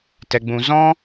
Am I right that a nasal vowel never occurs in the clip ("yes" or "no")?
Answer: no